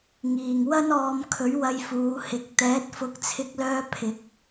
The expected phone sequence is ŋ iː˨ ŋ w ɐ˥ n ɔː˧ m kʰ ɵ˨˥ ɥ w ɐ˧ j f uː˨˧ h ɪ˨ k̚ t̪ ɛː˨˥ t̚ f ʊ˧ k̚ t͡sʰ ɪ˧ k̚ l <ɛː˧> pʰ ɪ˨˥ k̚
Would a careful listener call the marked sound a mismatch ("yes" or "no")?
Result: yes